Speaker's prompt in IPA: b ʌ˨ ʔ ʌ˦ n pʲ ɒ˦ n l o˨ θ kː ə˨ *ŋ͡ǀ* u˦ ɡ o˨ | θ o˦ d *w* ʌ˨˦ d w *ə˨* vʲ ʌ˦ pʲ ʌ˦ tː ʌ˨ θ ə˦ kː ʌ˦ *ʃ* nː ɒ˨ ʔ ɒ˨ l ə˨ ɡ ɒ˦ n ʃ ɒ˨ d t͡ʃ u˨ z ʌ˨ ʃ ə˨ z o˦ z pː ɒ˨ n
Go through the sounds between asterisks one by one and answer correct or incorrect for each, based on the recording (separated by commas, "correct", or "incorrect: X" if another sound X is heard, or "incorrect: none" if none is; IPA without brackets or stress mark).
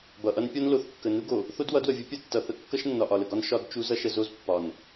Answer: incorrect: n, correct, correct, correct